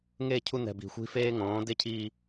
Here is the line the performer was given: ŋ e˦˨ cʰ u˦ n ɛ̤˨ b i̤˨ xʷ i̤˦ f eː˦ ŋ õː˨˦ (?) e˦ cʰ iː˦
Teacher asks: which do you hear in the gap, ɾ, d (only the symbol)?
d